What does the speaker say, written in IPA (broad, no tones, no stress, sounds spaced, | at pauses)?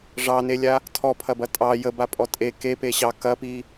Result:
ʐ ɑ n e lʲ a | tʰ ɔ pʰ ɐ b ɐ tʼ ɑ j ə b a pʼ ɔ tʼ e k e p e ɕ ɑ k ɐ p i